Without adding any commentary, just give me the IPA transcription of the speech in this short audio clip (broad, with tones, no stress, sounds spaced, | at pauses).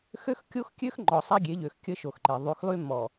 x ø˦ x kʲ o˦ x kʲ ø˦ x ŋ͡ǃ ɔ˨ sˤ a˦ ɡʲ e˨˦ ʎ ø˨ x kʲ ə˦ ʃ o˨ x ǃ e˨ ðˤ y˨˦ x lˠ y˦ m ɔ˨